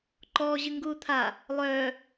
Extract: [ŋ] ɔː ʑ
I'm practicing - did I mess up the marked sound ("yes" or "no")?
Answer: yes